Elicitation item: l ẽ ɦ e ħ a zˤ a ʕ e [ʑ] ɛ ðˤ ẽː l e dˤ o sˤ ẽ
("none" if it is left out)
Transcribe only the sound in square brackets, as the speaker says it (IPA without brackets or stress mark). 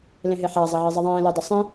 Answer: zˤ